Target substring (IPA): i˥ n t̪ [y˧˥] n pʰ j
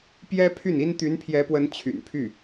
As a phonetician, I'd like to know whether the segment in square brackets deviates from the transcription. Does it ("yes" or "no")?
no